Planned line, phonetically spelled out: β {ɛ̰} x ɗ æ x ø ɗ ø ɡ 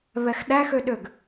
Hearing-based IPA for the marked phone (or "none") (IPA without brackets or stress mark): ɛ